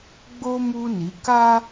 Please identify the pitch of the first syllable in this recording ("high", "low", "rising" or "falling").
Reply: high